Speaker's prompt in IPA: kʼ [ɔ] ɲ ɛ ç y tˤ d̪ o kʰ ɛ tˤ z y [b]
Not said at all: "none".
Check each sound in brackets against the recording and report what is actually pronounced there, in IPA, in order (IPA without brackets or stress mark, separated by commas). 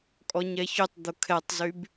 ɔ, b